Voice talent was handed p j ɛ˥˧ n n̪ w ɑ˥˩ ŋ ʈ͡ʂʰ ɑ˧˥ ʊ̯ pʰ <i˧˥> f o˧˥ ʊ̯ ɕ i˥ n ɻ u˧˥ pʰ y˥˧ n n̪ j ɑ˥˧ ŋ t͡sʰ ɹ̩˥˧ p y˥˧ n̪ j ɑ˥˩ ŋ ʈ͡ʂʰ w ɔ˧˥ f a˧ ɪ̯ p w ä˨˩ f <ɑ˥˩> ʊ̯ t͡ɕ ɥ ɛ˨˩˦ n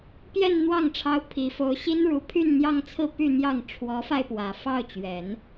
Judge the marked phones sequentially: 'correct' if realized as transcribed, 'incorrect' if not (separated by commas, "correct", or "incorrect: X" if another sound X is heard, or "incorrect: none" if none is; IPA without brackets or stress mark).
correct, correct